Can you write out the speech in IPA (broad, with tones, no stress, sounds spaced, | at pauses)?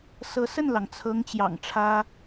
s ɤ˧˥ s ə˥˩ n l ɑ˩ ŋ t͡sʰ ɤ˧˥ ŋ t͡ɕ j ɑ̰˨˩ ŋ ʈ͡ʂʰ ä˥